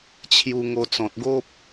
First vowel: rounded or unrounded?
rounded